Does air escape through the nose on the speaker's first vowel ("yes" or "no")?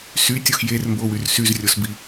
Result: no